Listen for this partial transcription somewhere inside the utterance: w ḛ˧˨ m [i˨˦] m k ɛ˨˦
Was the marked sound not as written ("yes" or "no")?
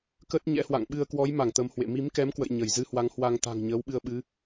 no